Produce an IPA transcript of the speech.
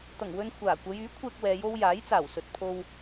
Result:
t̪ ɐ˨˩ ŋ w ɵ˧ n kʷʰ aː˨˩ kʷ ɐ˨˧ j yː˨˥ kʷʰ ɛː˧ k̚ w ɛː˨˧ j o˥ w j aː˨˥ j t͡s aː˨˩ w s ɵ˨ t̚ pʰ o˧ w

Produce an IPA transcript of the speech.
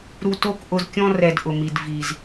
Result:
ɾ u˧ t o˦˨ k ʔ ʊ˧ z kʲ ɔ̃˦ r ɛ˧ d ʔ ʊ˨ m i˨ d v i˨ z

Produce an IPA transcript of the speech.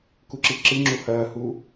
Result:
k u ǁ i ǁ ɨ ŋ͡ǁ u h ɐː h uː

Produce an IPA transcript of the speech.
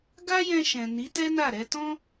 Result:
ɡ a˦ j ɛ̃˧ ʃ ɛ̃˨ n i˨˦ t ɛ˦ n a˦˨ ɾ ɛ˧ t ɔ̃˦

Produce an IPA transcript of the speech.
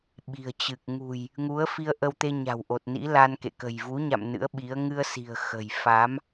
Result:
ɓ i̤˨˩ ə̯ t͡ɕ ɨ˨˩ k̚ ŋ ṳ˨˩ j | ŋ u˨˦ ə̯ f i˧ ə̯ ʔ ə˧ w t̪ e˧ ɲ a̤˨˩ w ʔ o˨˩ t̚ n ḭ˧˥ l a˧ n k ḛ˧˨ k ə̤˨˩ j v u˨˦ ɲ a̰˧˨ m n ɨ̰˧˥ ə̯ ɓ i˨˦ ə̯ ŋ ɨ˧ ə̯ s i̤˨˩ ə̯ x ə̤˨˩ j f a˨˦ m

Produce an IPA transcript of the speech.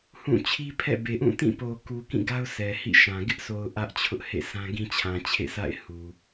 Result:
h ũ˦˨ t͡ɕʰ i˦ pʰ ɛ̰˦˨ b e˨ ʔ ũ˦˨ t ĩ˦˨ p o˨ k u˨ k ĩ˦˨ ɡ a˦ ʊ̯ sʰ ɛ˨ h ḭ˦˨ ʃ ã˨ ɡ ɪ˦ ʔ sʰ o˨ ʊ̯ ʔ ä˦ ʔ t͡ɕʰ ʊ˦ ʔ h ḛ˦˨ s ã˦ ɡ ĩ˦ t͡ɕʰ ã˨ t͡ɕʰ ḛ˦˨ s a̰˦˨ ɪ̯ h u˨

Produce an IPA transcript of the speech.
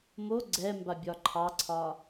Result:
m o ɡ͡ǀ ɛ m b a bʲ ɒ ǃʰ ɑ ǀʰ ɒ

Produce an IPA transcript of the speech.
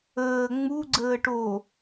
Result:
əː ŋ͡m u ɡ͡ǀ əː ʈ o

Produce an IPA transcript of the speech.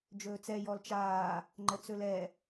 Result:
d͡ʒ ɵː t͡s ɛ j ɔ l t͡ʃ aː | ŋ͡ǃ ə t͡s ɵ l ɛ

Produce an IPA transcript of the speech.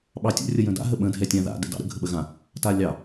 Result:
ɓ ɑ tʲ ə̰ rʲ ə j ə̃ d a̰ ɦ ə ɓ ə̃ dʱ ɛ tʲ ã ð a̰ d ɛ̰ d ɑ̰ ɾ ə̰ ɡʱ ə ɓ ə ɣ ã | t a lʲ ɑ

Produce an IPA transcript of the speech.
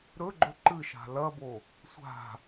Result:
ɾ ɵ ɡ͡ǃ ɵ ǃ ɨ ʃ a̤ l ɐ b o | sʷ a̤

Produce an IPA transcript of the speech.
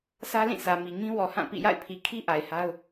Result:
sʰ ä˦ l ĩ˦˨ sʰ ä˨ m i˨ ŋ ĩ˦ w ɔ˨ h ã˦˨ p ḭ˦˨ j a̰˦˨ ɪ̯ pʰ i˨ kʰ i˦ ʔ a˨ ɪ̯ h a˦ ʊ̯

